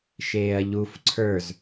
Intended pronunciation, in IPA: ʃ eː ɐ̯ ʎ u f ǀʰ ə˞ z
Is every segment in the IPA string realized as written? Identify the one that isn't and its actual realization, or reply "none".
none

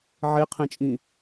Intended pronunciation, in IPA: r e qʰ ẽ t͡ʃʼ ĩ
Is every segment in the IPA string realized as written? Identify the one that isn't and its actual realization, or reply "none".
r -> ʕ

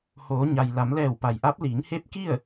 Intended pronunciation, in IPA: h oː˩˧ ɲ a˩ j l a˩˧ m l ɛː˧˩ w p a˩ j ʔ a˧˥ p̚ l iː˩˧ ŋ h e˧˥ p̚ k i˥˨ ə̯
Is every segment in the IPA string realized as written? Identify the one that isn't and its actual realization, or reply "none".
none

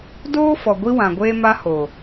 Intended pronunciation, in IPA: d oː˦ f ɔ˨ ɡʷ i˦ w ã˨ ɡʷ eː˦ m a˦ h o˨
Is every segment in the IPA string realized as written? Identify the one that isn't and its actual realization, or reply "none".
none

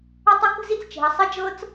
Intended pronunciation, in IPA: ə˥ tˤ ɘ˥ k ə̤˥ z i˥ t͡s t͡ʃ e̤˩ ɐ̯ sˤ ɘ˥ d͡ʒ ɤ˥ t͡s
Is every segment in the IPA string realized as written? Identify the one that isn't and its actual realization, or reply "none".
none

